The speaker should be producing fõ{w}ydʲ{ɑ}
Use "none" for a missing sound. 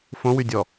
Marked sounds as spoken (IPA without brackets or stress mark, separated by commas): w, ɔ